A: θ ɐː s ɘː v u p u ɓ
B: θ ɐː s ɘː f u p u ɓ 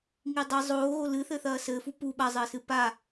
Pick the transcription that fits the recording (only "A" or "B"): B